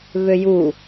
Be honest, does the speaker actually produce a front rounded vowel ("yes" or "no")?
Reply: yes